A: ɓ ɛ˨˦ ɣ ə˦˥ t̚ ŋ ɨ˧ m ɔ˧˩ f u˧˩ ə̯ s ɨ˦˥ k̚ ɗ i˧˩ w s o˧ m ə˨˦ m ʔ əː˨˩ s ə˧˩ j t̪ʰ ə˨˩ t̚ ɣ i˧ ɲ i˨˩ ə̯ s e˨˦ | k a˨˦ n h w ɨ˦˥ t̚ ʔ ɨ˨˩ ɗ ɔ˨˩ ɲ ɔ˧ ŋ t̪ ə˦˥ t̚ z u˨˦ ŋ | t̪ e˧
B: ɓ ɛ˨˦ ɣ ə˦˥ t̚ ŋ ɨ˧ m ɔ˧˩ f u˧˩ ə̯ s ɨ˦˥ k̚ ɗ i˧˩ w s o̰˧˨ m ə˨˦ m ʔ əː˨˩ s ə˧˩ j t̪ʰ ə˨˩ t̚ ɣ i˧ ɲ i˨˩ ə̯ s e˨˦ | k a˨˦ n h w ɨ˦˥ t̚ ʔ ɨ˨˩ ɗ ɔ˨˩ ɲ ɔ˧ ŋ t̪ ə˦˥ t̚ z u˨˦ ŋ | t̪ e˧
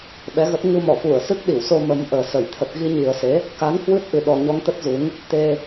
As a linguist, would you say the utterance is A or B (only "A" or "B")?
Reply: A